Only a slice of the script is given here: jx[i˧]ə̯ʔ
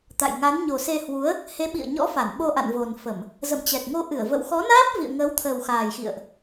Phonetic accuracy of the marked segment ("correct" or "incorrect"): incorrect